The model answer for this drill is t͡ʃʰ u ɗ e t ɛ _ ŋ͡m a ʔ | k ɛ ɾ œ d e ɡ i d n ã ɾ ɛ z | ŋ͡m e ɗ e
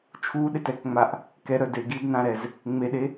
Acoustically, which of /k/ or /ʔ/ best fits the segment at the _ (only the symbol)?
k